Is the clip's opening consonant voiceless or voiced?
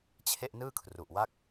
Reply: voiceless